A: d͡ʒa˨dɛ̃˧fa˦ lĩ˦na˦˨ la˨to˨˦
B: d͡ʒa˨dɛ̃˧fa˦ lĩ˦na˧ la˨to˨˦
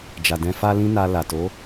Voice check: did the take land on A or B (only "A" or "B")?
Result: B